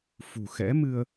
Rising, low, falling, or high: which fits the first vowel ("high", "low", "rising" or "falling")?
low